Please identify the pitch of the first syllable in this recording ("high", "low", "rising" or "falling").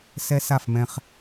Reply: high